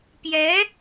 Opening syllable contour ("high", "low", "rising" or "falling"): rising